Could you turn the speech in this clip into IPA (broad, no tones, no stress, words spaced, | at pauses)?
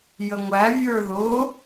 jəŋʷæ vʲə˞ðʊ